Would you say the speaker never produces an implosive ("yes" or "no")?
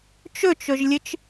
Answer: yes